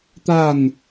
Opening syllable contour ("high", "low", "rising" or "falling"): falling